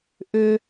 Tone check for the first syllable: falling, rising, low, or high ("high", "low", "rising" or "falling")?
low